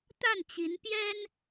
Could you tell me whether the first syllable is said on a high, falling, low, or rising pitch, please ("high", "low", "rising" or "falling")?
falling